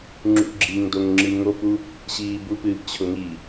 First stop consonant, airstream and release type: click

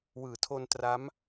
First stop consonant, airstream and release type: aspirated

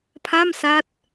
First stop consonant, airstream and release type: aspirated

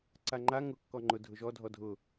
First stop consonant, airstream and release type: click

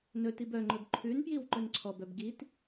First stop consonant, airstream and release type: plain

